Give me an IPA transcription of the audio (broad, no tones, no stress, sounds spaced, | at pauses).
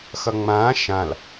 x ʌ ŋ͡m ãː ʃ ã l